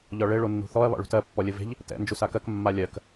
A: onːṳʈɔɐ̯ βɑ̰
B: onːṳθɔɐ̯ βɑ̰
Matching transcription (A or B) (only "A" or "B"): B